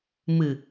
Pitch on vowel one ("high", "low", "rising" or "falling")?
low